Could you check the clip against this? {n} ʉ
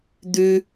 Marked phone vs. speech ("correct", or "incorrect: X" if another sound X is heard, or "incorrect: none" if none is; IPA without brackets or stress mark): incorrect: d̪